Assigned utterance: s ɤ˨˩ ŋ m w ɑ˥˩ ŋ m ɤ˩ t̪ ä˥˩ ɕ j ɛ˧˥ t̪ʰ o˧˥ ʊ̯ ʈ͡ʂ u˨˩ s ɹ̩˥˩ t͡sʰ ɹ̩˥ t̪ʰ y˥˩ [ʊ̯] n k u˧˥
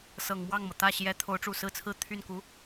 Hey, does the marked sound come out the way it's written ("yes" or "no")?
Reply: no